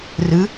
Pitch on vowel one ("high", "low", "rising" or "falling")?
rising